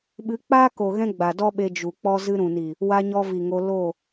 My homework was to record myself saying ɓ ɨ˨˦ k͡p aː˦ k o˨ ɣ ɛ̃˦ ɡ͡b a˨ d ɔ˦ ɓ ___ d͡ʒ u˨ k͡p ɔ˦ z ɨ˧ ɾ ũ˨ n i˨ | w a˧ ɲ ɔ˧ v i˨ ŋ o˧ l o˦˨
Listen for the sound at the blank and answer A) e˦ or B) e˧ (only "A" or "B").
B